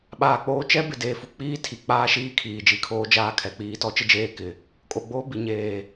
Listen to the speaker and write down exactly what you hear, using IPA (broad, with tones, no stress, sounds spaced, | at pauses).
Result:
ɓ aː˨ k͡p oː˦ t͡ʃ ɛ˦ b ɪ˨ d e˨ f u˨ k͡p iː˦ tʰ i˨ k͡p aː˦ ʃ iː˦ kʰ iː˨ d͡ʒ i˨ kʰ oː˦ d͡ʒ aː˦ kʰ ɛ˨ k͡p iː˨˦ t ɔ˦ t͡ʃ ɪ˦ d͡ʒ eː˦ k ɪ˨ | kʼ o˨ ɡ͡b oː˦ b i˨ ɲ eː˨